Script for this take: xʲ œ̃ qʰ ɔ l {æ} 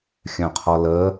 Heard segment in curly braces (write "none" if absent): ə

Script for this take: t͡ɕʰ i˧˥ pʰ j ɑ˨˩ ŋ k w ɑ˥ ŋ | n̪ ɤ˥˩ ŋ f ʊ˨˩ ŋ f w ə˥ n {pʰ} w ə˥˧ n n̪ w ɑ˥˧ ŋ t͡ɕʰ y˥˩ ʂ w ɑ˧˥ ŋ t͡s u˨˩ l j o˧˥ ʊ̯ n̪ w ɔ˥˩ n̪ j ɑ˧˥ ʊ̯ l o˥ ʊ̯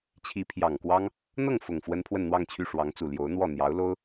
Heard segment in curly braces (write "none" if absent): pʰ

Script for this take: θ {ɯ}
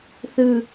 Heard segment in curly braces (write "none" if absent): ɯ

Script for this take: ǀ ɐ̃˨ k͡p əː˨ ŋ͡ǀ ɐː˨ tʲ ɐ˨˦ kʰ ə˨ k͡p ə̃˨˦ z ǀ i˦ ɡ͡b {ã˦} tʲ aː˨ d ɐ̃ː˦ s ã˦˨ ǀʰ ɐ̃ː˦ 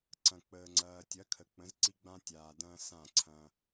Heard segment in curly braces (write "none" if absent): ã˦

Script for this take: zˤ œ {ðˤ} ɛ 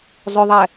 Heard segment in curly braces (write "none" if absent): ðˤ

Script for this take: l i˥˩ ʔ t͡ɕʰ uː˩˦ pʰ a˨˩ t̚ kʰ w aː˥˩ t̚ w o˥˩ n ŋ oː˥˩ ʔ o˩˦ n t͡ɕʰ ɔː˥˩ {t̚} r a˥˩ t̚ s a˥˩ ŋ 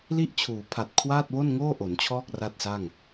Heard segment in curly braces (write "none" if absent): k̚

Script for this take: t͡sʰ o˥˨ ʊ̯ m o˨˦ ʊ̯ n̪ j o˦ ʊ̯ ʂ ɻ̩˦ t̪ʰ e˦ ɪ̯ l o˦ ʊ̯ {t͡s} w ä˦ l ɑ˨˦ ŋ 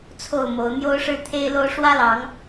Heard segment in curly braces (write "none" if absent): ʂ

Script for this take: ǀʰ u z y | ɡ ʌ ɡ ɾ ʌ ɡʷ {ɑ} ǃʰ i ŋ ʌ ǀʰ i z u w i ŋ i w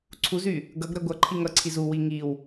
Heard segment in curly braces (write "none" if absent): ʌ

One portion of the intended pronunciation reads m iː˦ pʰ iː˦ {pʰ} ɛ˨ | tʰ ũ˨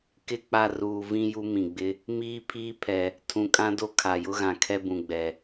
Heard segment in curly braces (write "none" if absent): pʰ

